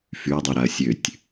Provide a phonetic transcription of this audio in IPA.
fyɐ̯dˤyɾaɐ̯ sʲøtʲ

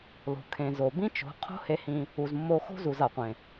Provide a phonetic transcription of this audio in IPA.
lo̤˨kʰẽ˨zo˨ bĩ˦t͡ʃo̤˨˦ qʰo̤˦he˧hĩ˧ | u˨zmːo˧ xo̤˦zu˨z a˨qʷẽ˨

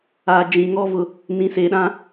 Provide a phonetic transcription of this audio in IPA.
aː˨d͡ʒĩ˨ŋɔ˦ vʊ˦ | nĩ˨seː˨ɗã˦

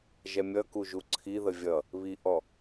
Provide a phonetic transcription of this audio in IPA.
ʒɛmʲʌku ʒuǀʰiðə vʲʌ | βiʔɔ

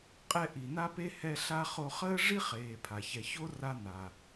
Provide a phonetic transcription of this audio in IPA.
qʼɛ˥ ʔi˨na˥pe˥ hɛ˦ ɬa˥χo˦ χəː˥ʐi˥ χeː˨ pʰa˩çɛ˨ço˥ ra˦ na˩

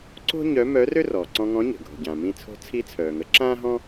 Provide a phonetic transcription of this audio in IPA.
ǀo̤˥ ɲœ˧˥ mœː˧˥rø˥rɔː˩ ǀɔ̃˧ŋɔ̃˧˥ ɲə̤˩ɡʱo̤˩ɟã˩ mĩ˧ t͡sʰo̤˧˥t͡sʰi˧˥t͡sʰœː˩ŋə˩˧ ǁãː˥ɦɔ̃˥

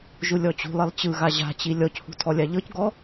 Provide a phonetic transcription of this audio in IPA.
ʒulʲɔt͡ɕṳlˠilˠ t͡ɕɯɣa ʑa̤t͡ɕi lʲɔchṳ tʰɔlʲaʎɤcɡɔ

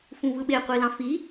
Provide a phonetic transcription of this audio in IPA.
fũvɯɓe qʷilɑ̃fi

